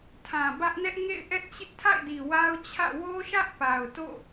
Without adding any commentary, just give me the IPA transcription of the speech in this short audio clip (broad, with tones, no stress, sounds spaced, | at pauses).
tʰ ã˨ b ä˦ ʔ n ɛ˦ ʔ ŋ ḛ˦˨ ɪ̯ ʔ ɛ˦ ʔ t͡ɕ ɪ˦ ʔ tʰ a̰˦˨ ɪ̯ d i˨ w a˦ ʊ̯ t͡ɕʰ ä̰˦˨ w o˦ ʃ ä˦ ʔ p a˨ ʊ̯ t o̰˦˨